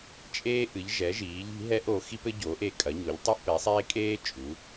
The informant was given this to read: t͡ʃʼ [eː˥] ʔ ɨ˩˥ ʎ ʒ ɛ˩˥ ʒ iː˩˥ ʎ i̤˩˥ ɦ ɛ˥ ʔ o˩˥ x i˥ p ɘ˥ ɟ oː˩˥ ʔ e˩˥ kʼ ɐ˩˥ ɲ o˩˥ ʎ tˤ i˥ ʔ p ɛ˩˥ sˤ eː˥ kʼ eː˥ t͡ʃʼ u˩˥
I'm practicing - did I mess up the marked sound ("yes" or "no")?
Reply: no